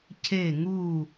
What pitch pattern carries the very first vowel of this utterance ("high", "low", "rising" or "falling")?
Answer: falling